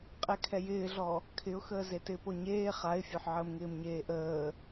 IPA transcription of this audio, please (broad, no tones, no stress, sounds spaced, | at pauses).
qʼ ɛ kʰ ɛ j ɪː ɮ ɔ | kʰ ɪ ʊ̯ x əː z e t ɪː p o ɲ eː χ a ɪ̯ fʲ o ħ ʕ əː m ŋ ɪː m ɲ eː ʔ əː